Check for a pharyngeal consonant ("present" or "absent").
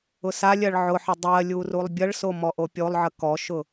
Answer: present